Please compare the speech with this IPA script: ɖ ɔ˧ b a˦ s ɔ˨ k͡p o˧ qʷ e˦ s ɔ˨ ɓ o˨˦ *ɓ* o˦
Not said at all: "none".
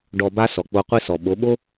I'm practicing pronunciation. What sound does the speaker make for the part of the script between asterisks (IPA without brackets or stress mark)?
ɓ